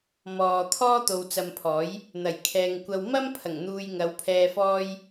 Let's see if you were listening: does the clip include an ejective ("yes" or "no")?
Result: no